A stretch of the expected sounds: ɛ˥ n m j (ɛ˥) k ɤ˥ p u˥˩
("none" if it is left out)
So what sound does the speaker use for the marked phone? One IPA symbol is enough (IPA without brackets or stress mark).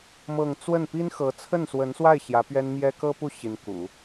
ɛ˥